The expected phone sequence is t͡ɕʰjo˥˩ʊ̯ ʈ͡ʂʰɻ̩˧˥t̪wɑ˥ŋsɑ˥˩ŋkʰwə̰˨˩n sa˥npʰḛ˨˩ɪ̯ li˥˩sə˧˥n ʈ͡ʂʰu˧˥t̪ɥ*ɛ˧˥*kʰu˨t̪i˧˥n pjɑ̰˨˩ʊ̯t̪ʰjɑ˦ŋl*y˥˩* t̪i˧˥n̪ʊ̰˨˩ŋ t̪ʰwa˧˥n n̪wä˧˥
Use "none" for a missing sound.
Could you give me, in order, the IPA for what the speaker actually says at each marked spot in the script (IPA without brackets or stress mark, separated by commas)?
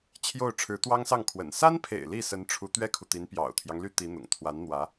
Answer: ɛ˥, y˥˩